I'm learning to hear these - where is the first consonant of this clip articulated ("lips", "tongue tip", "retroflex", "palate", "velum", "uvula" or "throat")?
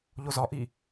palate